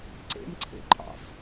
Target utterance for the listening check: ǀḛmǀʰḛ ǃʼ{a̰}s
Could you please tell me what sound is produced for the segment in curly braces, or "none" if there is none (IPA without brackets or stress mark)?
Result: ɑ̰